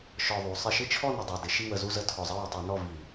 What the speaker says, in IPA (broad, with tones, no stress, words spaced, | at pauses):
ʃɔ˨˩ðˤu˩˧ sˤɪ˧˩˧ʃɪ˥˨t͡ʃʰɔ˥˨ nə˨˩dˤu˨˩dɪ˩˧ ʃi˥˨wə˧˩˧zu˥˨zə˥˨ tʰɔ˨˩zˤə˥˨wi˨˩tˤi˧˩˧ nɔ˥˨vi˧˩˧